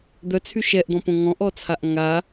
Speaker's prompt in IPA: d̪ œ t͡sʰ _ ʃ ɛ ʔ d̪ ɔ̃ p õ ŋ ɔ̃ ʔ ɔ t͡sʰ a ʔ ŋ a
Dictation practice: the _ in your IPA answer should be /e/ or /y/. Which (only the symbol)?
y